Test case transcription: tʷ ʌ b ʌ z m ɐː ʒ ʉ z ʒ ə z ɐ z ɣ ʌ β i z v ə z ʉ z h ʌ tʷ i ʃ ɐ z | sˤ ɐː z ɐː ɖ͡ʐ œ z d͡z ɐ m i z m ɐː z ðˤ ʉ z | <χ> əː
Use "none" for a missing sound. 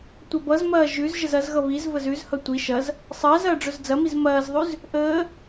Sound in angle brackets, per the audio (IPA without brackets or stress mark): ʔ